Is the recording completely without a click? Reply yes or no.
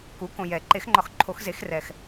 no